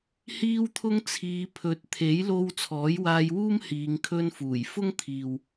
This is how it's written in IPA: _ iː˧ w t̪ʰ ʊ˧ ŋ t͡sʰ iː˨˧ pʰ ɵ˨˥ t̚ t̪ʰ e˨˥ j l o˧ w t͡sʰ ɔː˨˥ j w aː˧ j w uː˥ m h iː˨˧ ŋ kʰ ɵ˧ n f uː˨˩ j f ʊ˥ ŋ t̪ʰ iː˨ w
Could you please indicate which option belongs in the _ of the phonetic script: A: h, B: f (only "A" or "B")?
A